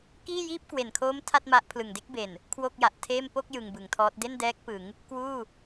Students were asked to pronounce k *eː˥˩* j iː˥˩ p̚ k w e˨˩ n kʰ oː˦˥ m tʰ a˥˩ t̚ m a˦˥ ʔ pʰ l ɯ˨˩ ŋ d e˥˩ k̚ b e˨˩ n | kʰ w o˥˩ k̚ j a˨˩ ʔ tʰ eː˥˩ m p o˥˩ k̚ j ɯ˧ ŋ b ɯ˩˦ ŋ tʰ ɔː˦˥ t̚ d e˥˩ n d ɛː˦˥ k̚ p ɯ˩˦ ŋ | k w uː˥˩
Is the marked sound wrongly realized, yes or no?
yes